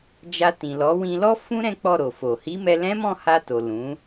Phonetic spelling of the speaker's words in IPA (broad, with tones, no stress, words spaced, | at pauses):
d͡ʒa˧tĩ˨lɔ˨˦ wĩ˧lɔ˦fũ˦ ɾɛ̃˦k͡pɔ˦˨ɾo˨fo˨ hi˨˦mɛ˧ lɛ̃˦ mɔ̃˦˨ha˧to˨ lũ˨˦